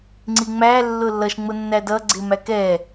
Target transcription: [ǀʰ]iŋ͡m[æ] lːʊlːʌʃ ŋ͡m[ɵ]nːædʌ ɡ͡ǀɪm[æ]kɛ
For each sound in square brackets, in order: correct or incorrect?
incorrect: ŋ͡ǀ, correct, incorrect: ʊ, correct

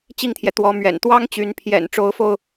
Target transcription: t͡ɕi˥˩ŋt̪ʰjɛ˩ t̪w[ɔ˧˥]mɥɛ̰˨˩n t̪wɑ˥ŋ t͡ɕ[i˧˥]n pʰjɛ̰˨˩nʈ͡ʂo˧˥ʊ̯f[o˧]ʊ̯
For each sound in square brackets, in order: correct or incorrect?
correct, incorrect: y˧˥, correct

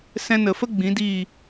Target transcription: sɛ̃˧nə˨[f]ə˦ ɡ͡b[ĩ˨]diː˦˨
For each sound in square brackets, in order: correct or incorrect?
correct, incorrect: ĩ˨˦

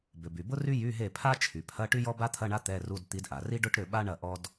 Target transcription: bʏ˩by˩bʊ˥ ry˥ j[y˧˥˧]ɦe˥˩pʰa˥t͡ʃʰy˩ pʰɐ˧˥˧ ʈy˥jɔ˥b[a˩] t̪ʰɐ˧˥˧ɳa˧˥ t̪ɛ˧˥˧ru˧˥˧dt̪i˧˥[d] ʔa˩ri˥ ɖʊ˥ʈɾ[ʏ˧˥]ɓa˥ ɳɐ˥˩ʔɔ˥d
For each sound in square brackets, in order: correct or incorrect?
correct, incorrect: a˥, correct, incorrect: ʏ˥˩

